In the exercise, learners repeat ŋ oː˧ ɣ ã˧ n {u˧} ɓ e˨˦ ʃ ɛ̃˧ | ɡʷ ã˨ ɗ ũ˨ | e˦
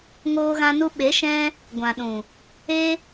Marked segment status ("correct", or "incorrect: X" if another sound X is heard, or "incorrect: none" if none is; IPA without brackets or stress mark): correct